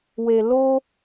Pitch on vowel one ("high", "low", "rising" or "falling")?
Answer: low